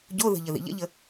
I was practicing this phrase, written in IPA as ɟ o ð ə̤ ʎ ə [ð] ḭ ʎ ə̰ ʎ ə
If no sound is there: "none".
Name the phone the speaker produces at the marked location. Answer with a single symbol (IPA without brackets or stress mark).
ð